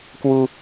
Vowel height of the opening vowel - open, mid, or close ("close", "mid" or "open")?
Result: close